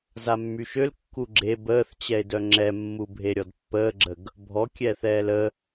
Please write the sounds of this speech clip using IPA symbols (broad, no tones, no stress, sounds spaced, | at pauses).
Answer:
z a mː y ʃ ø l kː u ɡ͡ǁ e b əː θ t͡ɕ ɛ e̯ d œ ŋ͡ǁ ɛ mː u bʱ e ɾʲ ɔ d pː əː ɡ͡ǁ ə ɡ | bʱ ɔ kʲ ɛː θ ɛː l ə